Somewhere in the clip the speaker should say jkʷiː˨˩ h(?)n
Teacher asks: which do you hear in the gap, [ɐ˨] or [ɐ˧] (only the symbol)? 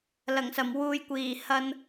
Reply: ɐ˧